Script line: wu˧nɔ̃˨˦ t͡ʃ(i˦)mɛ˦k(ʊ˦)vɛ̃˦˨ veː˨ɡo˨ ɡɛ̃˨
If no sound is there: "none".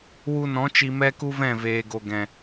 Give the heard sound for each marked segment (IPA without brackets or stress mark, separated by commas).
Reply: i˧, u˦